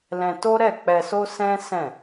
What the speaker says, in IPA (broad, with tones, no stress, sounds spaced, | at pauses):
l ɛ̃˧ t o˦ ɾ ɛ˦˨ k͡p ɛ˧ s o˦ s ɛ̃˦ s ɛ̃˦˨